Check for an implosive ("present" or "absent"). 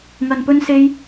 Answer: absent